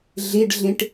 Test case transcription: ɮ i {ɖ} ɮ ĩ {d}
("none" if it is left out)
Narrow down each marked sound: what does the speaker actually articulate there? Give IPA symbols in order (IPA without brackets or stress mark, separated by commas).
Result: ɖ, ʈ